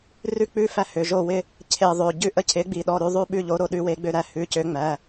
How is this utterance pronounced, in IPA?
r ʉ˦˨ k͡p ʉ˦˨ f æ˦˨ h ø˩˧˩ ʒ o˦˨ w ɪ˦˨ | cʰ e˦˨ ðˤ ø˩˧˩ ɟ ʉ˦˨ ʔ ə˦˨ cʰ ɪ˨˥ ɡ͡b i˩˧˩ ɗ ɔ˩˧˩ ɾ ʉ˦˨ ðˤ ʉ˦˨ ɓ ʉ˦˨ ʎ o˨˥ ɾ o˦˨ ɗ ʉ˨˥ w e˨˥ ɡ͡b ø˦˨ ɾ æ˨˥ h ʉ˩˧˩ c ø˨˥ ŋ͡m æ˩˧˩

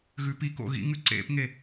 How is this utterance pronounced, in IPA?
ɣ ʉ p i k o̰ ɣ ḭ ŋ ʉ ǀ ḛ p ŋ e

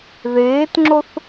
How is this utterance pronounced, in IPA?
ð eː t ŋ͡ǁ o θ

